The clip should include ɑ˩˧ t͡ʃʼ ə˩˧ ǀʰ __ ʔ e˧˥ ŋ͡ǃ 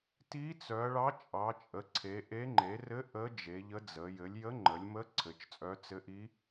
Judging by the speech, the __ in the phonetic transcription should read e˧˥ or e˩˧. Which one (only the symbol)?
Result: e˩˧